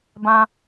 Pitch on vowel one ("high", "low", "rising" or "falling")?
high